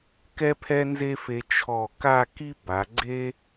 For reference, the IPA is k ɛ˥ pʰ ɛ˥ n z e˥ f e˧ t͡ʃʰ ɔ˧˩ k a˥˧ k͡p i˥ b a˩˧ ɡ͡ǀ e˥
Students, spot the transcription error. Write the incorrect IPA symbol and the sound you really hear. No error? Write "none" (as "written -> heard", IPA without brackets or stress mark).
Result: k͡p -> k